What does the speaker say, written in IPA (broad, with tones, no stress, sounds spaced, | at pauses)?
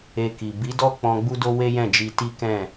e˧ k i˨ b i˨˦ d ɔ˦ k͡p ɔ̃˧ ɡ͡b u˦ d o˦ w e˦ j ɛ̃˦˨ d͡ʒ i˧ t i˦ k ɛ̃˦˨